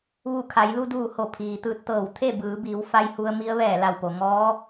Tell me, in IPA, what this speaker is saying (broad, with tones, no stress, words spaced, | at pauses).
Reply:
ʋu˧˩ kʰa˩˧jlu˧duː˧˩ ho˧˩pʰiː˩t̪ɯː˧t̚t̪ɤː˧˩w t̪ʰe˥˨ bɯː˩˧biː˩˧w fa˧jhu˧ə̯ mi˧˥ə̯ʋɛː˧˩la˧˩wpo˩ ŋɔː˧˥